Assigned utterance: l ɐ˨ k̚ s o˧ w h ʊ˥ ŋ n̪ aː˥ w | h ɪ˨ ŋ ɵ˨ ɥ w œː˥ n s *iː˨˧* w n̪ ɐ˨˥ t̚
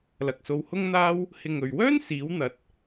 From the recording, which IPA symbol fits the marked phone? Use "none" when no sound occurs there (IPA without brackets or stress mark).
iː˨˧